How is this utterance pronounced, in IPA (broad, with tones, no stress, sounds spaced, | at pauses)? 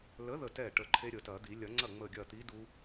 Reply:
l ə˨˥ ð ə˥˩ t ɛ˥˩ ʈ ə˧˩ ǃʰ e˦˥ ɾʲ ə˨˩˦ t ɐ˨˩˦ d̪ i˨˩˦ lʲ ɐ˨˩˦ ŋ͡ǀ ɐ˥˩ ŋ͡m ə˧˩ ɡʲ ɐ˧˩ t̪ i˨˥ d u˦˥